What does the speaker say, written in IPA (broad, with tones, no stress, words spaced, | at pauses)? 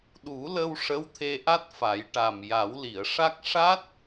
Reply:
ɗu˨˩˦lə˧w ʂə˧˥wt̪ʰe˧ʔa˦˥t̚fa˨˩˦j ʈa˨˩mja˨˩˦wli˨˩˨ə̯ʂa˦˥k̚ ʂa˦˥t̚